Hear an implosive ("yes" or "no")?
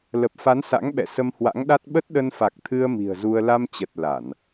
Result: yes